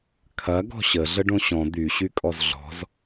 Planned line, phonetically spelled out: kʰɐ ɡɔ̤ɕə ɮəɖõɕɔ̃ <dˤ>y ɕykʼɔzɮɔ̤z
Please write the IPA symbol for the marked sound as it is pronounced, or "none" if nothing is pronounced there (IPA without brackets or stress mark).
d̪